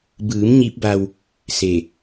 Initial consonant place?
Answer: labial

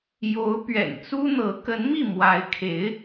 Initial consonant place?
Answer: palatal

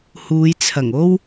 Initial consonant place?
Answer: glottal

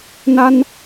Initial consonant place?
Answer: alveolar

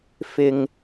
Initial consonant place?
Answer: labial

